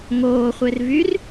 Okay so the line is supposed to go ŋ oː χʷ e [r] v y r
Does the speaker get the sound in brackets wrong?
no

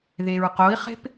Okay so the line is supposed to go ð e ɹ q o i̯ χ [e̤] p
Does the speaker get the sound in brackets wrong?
no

